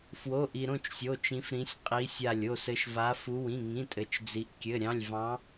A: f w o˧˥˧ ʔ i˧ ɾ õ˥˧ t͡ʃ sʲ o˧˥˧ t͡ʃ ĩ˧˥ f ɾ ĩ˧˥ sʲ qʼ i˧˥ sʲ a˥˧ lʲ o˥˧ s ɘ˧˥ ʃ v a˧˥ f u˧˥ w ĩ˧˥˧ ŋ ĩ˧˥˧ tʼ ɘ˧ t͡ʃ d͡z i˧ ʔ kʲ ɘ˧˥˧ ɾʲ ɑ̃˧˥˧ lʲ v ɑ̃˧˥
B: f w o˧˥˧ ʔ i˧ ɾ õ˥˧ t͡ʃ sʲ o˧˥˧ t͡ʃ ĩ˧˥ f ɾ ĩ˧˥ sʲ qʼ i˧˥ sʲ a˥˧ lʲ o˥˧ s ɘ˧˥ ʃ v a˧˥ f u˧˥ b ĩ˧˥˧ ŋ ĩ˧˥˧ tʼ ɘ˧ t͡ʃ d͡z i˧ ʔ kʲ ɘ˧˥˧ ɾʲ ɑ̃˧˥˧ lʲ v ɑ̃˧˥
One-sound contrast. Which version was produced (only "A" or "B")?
A